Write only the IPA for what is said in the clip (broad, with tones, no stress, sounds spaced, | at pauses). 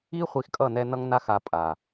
i˦ χʷ i˧ x kʼ ʌ˦˨ n ɛ˧ n ʌ˦ ŋ n a˦ x a˧ pʼ a˨